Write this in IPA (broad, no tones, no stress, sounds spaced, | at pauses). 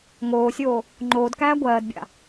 ŋ oː sʲ oː | ŋ͡ǃ oː d k æː ɡʷ ɜː d bʲ a̰